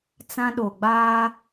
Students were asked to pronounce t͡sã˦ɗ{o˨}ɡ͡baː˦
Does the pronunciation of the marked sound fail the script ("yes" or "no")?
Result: no